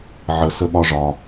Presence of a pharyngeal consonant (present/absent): present